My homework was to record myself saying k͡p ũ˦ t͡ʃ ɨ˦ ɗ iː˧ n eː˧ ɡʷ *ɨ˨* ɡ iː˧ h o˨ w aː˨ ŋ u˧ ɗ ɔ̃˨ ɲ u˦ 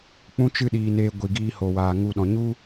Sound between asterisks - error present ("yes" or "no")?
yes